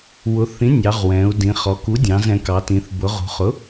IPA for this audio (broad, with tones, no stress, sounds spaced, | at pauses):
w ʊ˩˧ θ ĩ˩˥ nʲ ɑ˩˧ ʁ w ɛ̃˩˧ u̯ d ĩ˩˧ χ ɔ˩˧ k u˩˥ dʲ ɑ̃˩˧ z ɛ̃˩˧ k ɑ˩˧ t ĩ˩˧ θ b ʊ˩˧ ʁ ṳ˩˧ χ ʊ˩˥